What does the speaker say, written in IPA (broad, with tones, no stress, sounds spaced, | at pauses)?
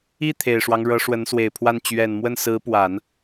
i˥˩ t̪ʰ e˨˩ ɪ̯ ʂ w ɑ˦ ŋ ɻ ɤ˧˥ ʂ w ə˧˥ n s w e˨˩ ɪ̯ pʰ w a˥˩ n t͡ɕ ɥ ɛ˨˩ n m w ə˥˩ n s ɹ̩˧˥ p w a˨˩˦ n